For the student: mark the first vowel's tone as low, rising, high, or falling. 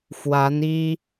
rising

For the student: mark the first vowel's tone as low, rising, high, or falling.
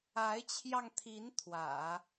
rising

